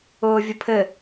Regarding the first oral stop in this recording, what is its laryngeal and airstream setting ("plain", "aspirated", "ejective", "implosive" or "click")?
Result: aspirated